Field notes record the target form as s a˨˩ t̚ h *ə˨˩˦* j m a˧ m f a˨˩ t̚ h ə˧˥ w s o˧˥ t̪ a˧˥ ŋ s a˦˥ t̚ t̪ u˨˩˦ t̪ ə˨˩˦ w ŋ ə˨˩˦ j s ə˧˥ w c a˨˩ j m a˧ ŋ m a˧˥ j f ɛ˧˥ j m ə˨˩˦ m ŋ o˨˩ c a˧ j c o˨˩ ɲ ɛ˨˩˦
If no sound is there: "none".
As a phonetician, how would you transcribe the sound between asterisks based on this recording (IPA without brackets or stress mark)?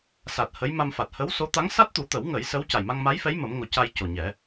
ə˧˥